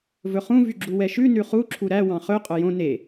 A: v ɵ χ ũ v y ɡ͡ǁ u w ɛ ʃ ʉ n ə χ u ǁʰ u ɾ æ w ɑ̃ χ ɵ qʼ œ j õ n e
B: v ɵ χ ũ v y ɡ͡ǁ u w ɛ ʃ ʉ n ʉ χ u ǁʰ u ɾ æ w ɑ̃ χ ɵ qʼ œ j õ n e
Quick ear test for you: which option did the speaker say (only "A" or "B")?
B